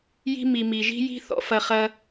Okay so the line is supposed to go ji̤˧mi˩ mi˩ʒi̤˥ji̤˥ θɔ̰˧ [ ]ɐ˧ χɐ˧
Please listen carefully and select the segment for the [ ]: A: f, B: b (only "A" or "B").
A